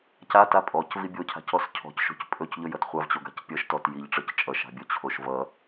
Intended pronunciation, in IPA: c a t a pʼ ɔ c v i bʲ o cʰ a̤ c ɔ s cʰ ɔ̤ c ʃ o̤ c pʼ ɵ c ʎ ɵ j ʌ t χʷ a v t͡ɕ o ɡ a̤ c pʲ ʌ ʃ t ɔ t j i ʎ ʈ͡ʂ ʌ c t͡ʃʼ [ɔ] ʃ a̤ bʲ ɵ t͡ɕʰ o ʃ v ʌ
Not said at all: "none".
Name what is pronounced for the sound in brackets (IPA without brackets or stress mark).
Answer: ʌ